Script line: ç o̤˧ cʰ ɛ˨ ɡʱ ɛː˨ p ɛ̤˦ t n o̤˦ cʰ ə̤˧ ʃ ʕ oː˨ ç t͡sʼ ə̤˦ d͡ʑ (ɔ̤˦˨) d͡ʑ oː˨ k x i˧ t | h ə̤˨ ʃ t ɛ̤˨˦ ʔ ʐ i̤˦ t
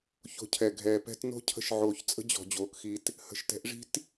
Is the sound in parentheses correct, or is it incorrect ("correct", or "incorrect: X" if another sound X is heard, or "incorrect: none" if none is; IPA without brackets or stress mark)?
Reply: incorrect: ɔ̤˨